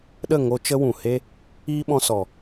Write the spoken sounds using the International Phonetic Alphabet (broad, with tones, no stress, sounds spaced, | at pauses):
ɗ ə˦˨ ŋ o˧ t͡ʃ ə˦ w ũ˨ h e˦ | iː˦ ɓ ɔ̃˧ s ɔ˨